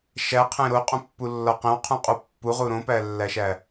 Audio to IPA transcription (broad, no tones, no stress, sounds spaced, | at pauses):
ʃ æ qʰ ẽ ɾ o qʼ ũ pː u lː ɒ q ẽ w qʰ ũ qʼ u pː u ʁ u ɾ õ p æ lː æ ʃ æ